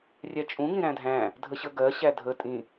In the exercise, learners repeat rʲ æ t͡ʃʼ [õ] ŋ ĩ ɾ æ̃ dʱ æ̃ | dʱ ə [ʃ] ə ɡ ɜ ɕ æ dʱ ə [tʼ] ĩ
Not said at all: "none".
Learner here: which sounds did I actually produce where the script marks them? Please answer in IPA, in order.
ũ, ɕ, tʼ

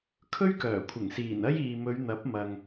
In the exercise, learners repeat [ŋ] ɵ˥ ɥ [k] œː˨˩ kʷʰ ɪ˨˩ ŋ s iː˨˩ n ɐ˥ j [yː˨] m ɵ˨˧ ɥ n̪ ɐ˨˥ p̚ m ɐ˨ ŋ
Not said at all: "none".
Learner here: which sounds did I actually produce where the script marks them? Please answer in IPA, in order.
kʰ, k, iː˨

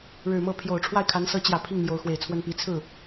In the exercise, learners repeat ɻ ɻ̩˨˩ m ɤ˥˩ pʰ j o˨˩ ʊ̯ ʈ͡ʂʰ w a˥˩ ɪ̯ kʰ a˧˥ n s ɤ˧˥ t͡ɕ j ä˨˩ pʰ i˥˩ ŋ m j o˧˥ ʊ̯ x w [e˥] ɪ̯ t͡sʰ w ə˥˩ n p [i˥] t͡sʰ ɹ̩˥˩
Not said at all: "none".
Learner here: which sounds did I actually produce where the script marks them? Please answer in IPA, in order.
e˨˩, i˧˥

